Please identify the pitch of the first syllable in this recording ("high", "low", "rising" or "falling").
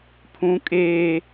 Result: high